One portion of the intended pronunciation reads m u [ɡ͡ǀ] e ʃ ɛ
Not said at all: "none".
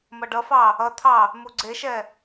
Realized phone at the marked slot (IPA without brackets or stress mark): ɡ͡ǀ